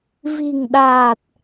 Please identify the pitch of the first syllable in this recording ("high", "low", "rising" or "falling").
low